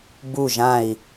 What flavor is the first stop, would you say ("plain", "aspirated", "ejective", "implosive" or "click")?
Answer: plain